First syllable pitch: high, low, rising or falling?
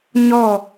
falling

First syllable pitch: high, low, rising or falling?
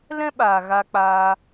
high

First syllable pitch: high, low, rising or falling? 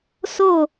falling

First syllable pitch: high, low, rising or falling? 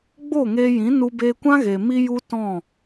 falling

